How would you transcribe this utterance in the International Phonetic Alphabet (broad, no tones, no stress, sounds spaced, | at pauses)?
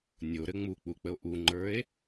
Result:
nʲ o ɾ ɘ ŋ͡m u k͡p u k͡p ə o̯ ʔ u ŋ͡ǃ ə˞ e̯